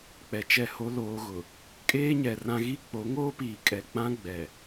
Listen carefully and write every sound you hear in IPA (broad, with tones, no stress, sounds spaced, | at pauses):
k͡p ɛ˨ t͡ʃ ɛ˦˨ h o˦ l oː˦ ɣ ʊ˨ | kʼ eː˦ ɲ ɛ˨ r ã˦ ɣ i˦ k͡p o˨˦ ŋ oː˦ p iː˨ kʼ ɛ˨ k͡p ã˦ ɡ͡b ɛ˨